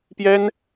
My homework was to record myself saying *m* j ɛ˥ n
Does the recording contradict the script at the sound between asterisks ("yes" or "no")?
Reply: yes